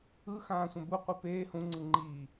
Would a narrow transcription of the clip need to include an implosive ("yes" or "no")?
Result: no